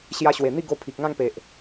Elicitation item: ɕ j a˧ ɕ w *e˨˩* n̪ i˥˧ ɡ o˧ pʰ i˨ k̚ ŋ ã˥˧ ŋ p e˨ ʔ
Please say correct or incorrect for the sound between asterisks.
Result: correct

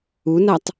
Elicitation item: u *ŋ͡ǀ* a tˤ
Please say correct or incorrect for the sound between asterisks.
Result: incorrect: n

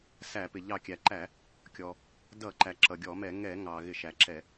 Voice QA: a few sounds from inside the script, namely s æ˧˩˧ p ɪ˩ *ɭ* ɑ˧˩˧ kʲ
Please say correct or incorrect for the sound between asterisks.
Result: incorrect: ʎ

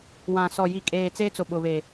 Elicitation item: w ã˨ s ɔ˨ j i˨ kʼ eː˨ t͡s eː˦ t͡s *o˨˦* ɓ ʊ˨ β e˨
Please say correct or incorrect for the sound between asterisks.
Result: incorrect: o˨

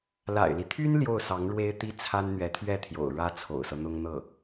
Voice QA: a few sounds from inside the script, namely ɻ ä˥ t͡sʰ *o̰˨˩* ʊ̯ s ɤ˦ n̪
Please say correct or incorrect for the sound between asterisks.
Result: correct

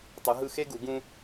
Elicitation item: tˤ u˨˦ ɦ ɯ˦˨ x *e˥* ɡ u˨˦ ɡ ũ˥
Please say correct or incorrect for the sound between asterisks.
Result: correct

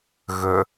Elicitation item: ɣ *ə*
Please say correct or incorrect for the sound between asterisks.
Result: correct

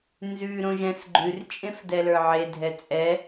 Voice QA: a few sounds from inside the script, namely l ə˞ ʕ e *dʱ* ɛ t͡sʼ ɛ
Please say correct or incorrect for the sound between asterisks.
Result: correct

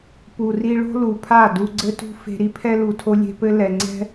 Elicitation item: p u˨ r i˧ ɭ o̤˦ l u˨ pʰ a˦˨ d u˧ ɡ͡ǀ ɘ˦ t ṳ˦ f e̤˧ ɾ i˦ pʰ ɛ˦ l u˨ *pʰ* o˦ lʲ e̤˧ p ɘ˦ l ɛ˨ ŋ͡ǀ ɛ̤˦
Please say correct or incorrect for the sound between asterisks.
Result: incorrect: tʰ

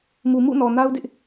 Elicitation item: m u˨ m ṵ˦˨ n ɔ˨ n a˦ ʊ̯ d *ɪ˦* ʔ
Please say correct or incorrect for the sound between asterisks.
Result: correct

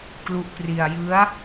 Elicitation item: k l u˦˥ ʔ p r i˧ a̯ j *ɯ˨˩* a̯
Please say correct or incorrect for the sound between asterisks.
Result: incorrect: ɯ˦˥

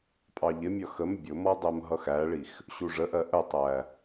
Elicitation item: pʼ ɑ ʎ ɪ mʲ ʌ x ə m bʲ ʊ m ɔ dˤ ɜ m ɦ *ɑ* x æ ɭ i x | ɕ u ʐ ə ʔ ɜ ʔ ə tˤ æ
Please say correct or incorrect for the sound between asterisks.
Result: incorrect: ʌ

